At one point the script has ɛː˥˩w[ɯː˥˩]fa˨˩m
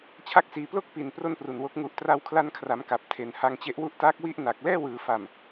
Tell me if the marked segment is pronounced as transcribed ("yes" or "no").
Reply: no